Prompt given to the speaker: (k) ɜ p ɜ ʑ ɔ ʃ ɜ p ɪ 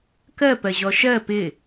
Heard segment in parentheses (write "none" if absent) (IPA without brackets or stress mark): k